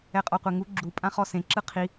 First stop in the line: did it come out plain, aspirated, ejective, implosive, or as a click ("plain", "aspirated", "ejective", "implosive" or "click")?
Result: ejective